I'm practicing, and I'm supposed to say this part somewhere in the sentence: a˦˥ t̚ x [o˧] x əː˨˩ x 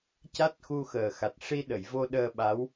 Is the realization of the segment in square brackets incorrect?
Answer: yes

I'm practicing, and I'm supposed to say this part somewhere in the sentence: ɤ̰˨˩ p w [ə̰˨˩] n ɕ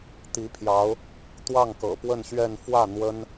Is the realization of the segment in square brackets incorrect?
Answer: yes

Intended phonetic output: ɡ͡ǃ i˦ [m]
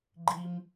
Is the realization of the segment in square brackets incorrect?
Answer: no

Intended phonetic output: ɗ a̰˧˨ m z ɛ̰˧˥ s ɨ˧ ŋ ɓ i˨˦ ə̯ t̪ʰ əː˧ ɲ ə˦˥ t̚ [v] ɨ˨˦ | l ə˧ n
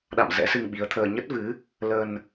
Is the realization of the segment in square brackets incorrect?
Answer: no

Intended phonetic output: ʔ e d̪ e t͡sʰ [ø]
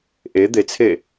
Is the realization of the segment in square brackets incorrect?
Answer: yes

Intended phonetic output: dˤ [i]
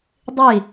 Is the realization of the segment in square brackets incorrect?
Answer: no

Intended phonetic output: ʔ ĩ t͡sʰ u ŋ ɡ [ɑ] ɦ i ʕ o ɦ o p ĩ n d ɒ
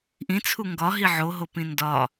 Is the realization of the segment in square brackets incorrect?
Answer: yes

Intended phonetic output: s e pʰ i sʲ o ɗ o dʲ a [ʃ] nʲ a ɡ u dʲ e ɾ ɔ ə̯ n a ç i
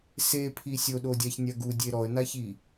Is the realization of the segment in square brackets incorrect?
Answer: yes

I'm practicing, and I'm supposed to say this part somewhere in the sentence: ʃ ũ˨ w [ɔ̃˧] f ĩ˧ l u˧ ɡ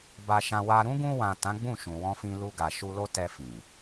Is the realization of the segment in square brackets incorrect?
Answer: no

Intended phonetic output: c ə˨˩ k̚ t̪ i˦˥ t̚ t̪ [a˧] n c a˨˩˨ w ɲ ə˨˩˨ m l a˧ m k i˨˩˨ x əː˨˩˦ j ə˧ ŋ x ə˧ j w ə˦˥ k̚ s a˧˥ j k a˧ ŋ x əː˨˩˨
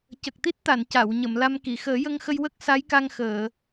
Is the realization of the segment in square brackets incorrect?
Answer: yes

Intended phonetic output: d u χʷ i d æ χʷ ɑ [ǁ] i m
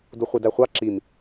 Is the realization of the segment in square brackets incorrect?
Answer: no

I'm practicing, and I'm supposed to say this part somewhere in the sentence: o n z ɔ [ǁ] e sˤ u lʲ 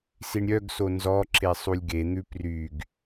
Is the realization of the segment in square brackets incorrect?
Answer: no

